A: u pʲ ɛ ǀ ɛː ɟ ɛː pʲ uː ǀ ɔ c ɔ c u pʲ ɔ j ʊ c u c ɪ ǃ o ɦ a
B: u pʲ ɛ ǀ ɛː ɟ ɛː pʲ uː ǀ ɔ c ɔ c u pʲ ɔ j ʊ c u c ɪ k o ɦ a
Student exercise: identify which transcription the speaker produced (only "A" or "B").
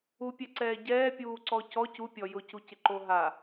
A